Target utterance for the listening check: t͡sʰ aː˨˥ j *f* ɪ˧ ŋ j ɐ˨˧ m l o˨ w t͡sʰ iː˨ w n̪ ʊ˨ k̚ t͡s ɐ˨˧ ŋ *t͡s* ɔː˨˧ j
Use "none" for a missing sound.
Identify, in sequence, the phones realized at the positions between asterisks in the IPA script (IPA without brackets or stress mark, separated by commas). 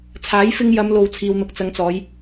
f, t͡s